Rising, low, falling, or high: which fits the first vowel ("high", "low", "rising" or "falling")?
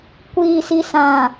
low